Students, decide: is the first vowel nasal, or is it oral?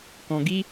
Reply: nasal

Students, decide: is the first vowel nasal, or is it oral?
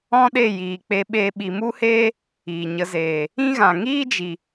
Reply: nasal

